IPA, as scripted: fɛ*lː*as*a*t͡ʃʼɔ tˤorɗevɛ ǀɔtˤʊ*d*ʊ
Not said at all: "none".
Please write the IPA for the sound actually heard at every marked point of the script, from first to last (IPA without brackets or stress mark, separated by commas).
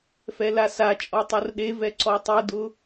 l, a, d